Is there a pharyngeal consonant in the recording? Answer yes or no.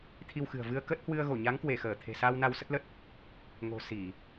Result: no